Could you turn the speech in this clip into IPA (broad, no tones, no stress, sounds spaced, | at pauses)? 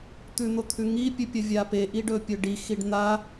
t̪ ʉ n̪ o t̪ʰ ʉ ŋ i pʲ ɵ pʲ ɐ vʲ a p e ʔ i ɖ ɵ pʲ ɵ ɖ i x i ɖ n̪ a